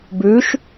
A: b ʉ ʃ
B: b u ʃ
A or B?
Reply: A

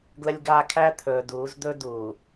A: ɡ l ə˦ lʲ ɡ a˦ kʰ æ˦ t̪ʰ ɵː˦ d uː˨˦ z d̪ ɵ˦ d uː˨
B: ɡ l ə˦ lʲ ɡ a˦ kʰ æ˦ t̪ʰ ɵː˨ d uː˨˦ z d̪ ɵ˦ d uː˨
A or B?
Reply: B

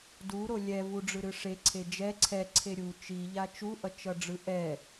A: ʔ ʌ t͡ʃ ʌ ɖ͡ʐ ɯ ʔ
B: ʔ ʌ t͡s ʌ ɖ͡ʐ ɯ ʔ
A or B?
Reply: A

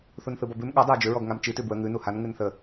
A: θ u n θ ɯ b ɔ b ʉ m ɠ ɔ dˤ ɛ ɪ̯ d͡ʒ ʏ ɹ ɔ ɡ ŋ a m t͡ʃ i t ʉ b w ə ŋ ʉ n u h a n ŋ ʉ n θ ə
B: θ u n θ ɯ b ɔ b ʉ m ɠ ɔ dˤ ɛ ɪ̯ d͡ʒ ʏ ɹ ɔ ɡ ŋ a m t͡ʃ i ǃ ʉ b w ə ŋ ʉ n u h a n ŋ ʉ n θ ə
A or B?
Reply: A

